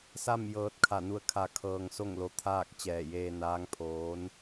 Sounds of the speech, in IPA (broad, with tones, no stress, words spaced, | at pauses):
sa˥˨m jɤː˧t̚kʰa˧˩nu˧˥ə̯kʰa˧ kʰɤː˧ŋso˥˨ŋlo˧t̪ʰaː˥˨k̚ t͡ɕɛː˧˩jeː˧naː˧˥ŋpʰoː˧˥n